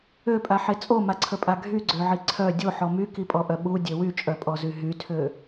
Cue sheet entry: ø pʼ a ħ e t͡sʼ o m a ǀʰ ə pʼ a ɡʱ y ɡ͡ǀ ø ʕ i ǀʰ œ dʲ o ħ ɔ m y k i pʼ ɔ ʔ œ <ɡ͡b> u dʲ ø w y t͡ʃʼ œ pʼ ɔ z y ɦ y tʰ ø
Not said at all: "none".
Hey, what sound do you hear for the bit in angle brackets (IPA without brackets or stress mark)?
ɓ